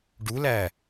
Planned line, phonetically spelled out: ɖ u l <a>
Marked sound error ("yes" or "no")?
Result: yes